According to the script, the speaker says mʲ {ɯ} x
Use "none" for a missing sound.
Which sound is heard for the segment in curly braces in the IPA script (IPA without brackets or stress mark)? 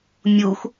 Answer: u